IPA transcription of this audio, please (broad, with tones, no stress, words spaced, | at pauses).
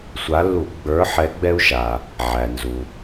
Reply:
sʷa˨˦lːu˧˩˧ ɡ͡bə˞˨˦ ħɛ˨˦ɡ͡bɛ˦u̯ʃa˩ | ʕæ˩nzu˩